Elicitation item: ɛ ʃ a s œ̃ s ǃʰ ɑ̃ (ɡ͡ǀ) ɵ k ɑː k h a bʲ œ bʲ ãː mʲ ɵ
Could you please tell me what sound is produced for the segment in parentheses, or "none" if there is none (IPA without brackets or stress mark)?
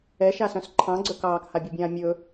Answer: ɡ͡ǀ